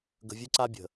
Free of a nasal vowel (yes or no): yes